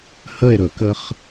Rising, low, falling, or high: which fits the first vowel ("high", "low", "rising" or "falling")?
falling